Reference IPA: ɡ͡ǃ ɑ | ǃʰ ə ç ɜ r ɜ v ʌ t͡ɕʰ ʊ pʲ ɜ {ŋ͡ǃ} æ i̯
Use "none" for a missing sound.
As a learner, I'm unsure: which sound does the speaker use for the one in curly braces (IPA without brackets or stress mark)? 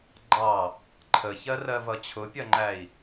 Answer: ŋ͡ǃ